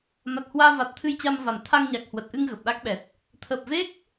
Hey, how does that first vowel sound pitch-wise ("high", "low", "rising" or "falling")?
low